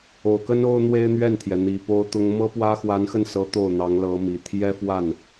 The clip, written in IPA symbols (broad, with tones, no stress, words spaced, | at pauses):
o˨˩ʊ̯kə˥n o˥ʊ̯n̪we˥ɪ̯ n̪ɥɛ˥˩nt̪ʰjɛ˩n̪i˨˩ po˥ʊ̯t̪ʊ˥ŋ mɤ˥pwä˥ xwa˧˥nxə˥˩nsɤ˧˥ t̪o˥˩ʊ̯n̪ɑ˧˥ŋ lɤ˧˥mi˨˩ t̪ʰjɛ˥fwa˥˩n